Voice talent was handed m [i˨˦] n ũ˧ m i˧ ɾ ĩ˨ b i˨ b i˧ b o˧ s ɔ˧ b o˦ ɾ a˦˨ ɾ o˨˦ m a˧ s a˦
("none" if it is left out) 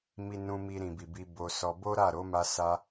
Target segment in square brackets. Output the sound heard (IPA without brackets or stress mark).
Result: i˧